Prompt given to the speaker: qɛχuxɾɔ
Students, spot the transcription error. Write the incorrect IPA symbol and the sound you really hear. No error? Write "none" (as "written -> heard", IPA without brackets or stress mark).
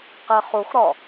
none